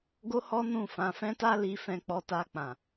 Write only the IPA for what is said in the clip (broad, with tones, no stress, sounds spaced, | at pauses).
ɡ o˦ h ɔ˦ n ũ˦˨ f ã˨˦ f ɛ̃˦ t a˦ l i˧ f ɛ̃˧ k͡p ɔ˧ t a˧ k͡p ã˨